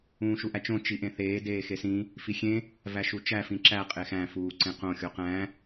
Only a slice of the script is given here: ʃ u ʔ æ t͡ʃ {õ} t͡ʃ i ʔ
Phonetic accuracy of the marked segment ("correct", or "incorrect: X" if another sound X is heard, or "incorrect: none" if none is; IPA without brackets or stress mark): correct